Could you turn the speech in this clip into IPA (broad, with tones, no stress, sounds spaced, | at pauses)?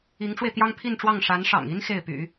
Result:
i˧˥ ŋ ʈ͡ʂ w e˧ ɪ̯ t̪ j ɑ˥ ŋ pʰ i˥˧ n ʈ͡ʂ w ɑ˥˩ ŋ ʂ a˧˥ n ʂ ɑ̰˨˩ ŋ i˥ n x e˥˩ ɪ̯ p y̰˨˩˦